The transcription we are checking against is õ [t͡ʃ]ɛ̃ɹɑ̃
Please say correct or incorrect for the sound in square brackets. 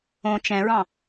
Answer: correct